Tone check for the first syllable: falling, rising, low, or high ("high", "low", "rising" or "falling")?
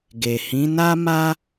low